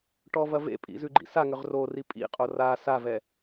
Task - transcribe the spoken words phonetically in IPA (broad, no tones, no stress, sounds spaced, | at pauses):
ʈ ɔ v ɐ v ḛ pʼ ḭ z ʉ ɡ͡ǃ ḭ s a ŋ ʏ ʁ r o r i pʼ ḭ qʼ o r a s a v ɛ